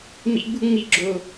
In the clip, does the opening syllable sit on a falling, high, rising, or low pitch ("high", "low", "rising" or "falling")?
high